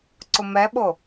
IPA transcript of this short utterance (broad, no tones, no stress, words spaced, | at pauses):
ǀʊmɛɓo